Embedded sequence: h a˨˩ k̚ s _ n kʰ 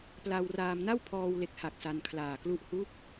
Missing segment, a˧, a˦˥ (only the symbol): a˧